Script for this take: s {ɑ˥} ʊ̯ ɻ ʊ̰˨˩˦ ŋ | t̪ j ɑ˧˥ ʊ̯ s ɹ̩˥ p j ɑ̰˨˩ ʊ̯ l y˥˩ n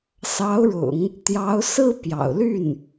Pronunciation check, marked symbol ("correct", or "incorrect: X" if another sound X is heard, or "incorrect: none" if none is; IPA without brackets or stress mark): incorrect: ɑ˧˥